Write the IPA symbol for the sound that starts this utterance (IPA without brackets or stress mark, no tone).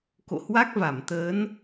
k